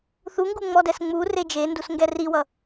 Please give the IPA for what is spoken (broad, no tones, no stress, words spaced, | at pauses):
θuŋɡu ŋ͡mɔdɛsŋ͡mure d͡ʒendus ŋɡɛriwʌ